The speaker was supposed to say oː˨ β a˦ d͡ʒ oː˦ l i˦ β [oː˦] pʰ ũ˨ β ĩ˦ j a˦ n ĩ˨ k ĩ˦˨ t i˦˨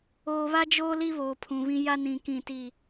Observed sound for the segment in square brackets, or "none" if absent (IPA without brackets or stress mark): oː˨